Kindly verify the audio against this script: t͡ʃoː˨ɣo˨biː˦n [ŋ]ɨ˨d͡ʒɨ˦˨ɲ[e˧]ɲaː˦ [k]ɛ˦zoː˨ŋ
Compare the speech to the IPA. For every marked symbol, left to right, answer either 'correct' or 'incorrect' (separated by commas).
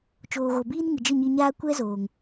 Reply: correct, incorrect, incorrect